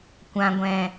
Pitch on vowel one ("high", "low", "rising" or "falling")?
low